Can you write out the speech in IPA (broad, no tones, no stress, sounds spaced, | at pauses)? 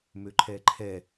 m ø ǃʰ ɛː ǃʰ ɛ